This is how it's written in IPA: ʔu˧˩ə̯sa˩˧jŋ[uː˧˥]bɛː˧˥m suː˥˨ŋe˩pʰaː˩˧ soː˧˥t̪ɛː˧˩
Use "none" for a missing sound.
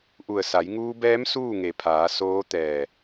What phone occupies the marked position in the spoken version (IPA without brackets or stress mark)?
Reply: uː˧